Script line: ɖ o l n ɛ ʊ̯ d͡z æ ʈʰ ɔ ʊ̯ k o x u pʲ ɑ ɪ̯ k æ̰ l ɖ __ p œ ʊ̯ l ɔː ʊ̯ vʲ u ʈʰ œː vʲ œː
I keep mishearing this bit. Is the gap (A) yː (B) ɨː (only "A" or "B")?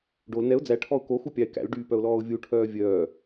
A